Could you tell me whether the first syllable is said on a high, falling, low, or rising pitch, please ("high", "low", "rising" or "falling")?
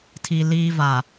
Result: high